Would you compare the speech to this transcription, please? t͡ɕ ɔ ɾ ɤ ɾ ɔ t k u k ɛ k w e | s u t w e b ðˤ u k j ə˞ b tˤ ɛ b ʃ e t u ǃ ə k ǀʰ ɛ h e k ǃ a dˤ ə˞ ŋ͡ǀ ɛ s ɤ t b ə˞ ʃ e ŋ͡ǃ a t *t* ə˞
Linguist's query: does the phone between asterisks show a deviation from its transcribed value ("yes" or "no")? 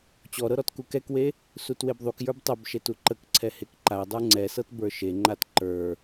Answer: yes